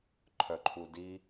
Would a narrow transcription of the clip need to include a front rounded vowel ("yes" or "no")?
yes